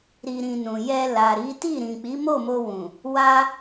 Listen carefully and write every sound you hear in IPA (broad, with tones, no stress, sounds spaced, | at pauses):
ɾ i˧ ɾ ĩ˧ n ũ˨ j ɛ˧ l a˨ ɾ i˨˦ t i˦˨ ɾ ĩ˨ k͡p i˨˦ m o˦˨ m o˧ w ũ˨ | w a˦